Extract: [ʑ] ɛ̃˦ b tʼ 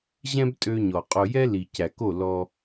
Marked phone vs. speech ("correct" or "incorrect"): correct